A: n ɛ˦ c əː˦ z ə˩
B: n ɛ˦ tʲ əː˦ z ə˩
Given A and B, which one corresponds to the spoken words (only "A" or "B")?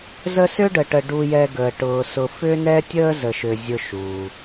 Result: B